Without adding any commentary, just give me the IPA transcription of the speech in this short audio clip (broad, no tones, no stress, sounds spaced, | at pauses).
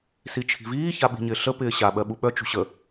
s i t͡ʃʰ i̤ v iː ç a ɓ i̤ ɲ ɪː ɬ ə p ɪː ɕ a ɓ ɜ ɓ u ɓ œ t͡ʃ ṳ ɕ ə